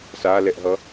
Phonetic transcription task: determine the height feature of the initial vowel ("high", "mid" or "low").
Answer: low